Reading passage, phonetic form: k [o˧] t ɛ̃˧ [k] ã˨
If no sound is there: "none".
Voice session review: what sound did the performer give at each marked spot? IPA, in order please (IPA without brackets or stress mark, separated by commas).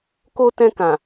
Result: o˧, k